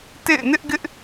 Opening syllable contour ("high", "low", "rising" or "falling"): falling